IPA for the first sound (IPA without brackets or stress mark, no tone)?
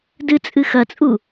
d